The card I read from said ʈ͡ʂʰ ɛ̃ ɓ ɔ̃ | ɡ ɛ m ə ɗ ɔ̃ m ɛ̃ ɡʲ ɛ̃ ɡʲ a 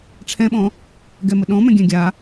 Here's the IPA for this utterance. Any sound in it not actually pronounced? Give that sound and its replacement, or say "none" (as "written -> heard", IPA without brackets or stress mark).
none